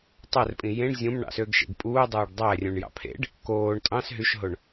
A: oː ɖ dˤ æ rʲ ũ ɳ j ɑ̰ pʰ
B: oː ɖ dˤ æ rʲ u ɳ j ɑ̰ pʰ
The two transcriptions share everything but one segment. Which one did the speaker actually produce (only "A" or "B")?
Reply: A